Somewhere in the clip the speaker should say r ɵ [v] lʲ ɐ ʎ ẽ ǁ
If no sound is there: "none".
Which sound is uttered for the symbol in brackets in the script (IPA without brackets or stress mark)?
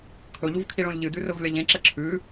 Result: v